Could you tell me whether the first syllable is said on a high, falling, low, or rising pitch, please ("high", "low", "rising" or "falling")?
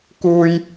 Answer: high